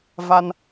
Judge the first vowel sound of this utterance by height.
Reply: low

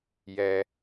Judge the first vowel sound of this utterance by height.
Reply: mid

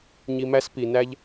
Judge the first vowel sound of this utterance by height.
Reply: high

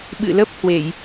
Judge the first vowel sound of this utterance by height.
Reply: high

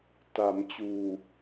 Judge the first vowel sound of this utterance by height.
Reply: low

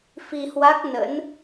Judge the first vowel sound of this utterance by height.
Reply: high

